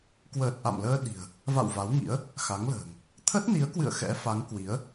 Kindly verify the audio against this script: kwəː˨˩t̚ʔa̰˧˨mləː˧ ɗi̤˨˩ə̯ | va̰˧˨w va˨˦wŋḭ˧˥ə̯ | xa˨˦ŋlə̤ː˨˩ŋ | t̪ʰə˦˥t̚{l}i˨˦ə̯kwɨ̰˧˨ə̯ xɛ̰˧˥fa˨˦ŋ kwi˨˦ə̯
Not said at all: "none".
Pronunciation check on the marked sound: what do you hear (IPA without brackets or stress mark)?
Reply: n